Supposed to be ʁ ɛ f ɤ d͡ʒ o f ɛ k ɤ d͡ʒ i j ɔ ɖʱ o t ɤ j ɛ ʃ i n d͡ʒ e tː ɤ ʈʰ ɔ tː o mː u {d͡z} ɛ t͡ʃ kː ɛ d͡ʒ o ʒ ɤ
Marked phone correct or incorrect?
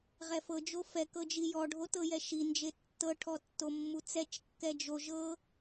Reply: incorrect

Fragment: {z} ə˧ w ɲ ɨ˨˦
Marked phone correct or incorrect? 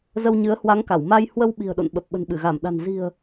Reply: correct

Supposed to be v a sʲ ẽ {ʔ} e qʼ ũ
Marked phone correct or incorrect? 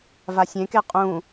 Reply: incorrect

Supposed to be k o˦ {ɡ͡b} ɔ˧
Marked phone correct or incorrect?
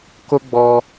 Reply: correct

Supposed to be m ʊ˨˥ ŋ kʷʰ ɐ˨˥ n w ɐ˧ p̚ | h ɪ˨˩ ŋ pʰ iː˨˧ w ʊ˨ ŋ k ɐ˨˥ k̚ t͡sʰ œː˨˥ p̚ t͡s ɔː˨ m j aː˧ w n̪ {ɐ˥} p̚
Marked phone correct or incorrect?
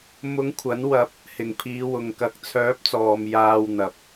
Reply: incorrect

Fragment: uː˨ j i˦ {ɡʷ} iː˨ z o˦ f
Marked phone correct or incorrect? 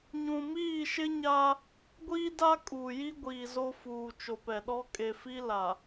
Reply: correct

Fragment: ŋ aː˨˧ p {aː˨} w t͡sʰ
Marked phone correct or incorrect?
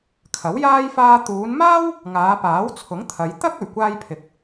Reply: incorrect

